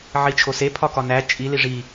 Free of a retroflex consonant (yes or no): no